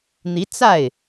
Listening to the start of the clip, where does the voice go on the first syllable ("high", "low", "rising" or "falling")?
rising